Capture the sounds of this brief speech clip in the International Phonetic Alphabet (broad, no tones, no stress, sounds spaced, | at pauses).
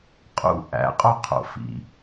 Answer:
qʼ ṵ ʔ æ̰ qʼ o qʰ o̰ f ḭ